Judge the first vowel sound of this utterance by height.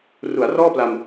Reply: high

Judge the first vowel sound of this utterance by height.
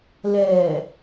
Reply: mid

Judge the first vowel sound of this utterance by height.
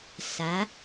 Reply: low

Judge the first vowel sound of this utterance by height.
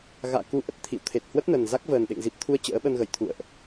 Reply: low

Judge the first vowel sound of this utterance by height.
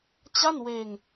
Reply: low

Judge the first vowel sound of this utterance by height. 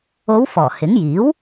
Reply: mid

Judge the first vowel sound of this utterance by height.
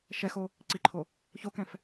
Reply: mid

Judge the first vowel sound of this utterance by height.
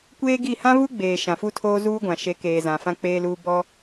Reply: mid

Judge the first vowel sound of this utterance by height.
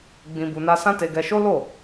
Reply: high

